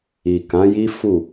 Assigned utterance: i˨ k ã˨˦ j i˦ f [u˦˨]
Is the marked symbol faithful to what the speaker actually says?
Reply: yes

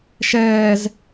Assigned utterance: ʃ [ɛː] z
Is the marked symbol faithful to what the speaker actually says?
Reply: yes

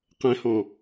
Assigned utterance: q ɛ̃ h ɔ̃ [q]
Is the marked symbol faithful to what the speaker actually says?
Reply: no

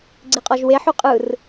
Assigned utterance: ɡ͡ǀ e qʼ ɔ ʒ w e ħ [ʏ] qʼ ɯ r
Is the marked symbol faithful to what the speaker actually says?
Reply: no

